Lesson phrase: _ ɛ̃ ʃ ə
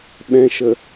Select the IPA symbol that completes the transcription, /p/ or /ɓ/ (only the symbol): ɓ